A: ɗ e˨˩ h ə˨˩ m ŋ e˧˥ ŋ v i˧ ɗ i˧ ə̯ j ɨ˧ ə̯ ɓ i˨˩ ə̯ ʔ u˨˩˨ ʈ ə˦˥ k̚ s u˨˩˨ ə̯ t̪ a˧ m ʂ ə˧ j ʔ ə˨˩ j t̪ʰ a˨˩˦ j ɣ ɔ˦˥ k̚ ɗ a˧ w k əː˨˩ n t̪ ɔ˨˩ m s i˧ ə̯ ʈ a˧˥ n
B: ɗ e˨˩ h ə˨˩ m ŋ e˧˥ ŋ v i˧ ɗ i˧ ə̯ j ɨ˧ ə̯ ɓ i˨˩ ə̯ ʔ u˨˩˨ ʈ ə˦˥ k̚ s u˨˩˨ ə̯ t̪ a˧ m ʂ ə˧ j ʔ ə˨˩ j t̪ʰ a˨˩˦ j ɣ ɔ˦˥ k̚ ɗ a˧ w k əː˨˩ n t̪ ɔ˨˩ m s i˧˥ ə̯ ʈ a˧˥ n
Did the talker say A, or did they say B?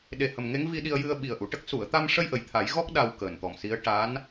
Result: B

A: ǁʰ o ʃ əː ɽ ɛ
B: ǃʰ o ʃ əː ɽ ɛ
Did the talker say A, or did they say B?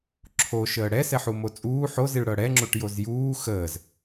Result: A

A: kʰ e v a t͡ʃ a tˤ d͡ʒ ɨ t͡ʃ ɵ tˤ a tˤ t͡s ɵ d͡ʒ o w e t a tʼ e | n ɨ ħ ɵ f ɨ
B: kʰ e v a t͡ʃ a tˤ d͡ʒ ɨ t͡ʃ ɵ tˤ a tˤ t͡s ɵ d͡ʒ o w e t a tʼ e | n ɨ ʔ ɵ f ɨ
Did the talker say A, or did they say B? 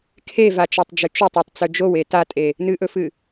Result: B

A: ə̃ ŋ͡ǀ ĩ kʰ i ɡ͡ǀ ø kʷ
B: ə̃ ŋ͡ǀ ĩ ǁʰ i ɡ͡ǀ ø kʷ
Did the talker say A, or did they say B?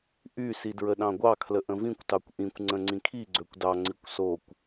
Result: A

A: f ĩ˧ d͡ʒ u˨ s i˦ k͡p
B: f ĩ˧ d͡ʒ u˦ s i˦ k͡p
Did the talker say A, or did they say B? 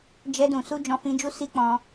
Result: B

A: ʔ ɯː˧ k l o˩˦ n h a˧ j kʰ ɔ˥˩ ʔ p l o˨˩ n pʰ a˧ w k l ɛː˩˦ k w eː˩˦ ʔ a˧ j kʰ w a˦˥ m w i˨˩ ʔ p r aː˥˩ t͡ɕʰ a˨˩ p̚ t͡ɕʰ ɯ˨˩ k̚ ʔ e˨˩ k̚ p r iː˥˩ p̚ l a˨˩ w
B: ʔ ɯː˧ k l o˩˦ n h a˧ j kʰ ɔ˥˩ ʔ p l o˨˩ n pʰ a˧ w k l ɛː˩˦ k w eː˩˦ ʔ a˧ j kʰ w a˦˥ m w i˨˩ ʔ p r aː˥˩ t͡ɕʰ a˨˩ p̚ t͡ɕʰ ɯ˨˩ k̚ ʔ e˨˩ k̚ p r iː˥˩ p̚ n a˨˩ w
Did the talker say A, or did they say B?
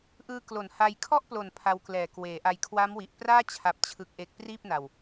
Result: B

